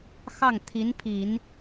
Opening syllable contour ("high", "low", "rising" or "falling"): falling